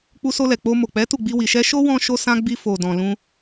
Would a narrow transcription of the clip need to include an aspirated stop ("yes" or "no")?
no